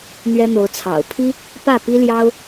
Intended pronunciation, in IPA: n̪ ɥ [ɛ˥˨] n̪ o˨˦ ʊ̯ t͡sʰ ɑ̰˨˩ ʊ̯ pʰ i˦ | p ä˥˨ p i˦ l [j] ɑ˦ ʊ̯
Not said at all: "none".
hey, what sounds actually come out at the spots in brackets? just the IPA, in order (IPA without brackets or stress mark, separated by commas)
ɛ˦, j